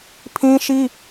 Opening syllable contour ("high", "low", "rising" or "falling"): high